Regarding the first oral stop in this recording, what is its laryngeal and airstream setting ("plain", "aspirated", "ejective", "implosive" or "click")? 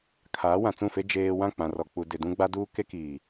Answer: aspirated